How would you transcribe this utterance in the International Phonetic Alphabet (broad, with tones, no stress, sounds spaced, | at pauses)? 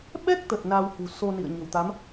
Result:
ɓ ɛ˦˥ k̚ t̪ ə˨˩ t̚ n a˧ w h ṳ˨˩ s o˧ n ḭ˧˨ ə̯ ɲ ə̤˨˩ w t̪ a˨˦ m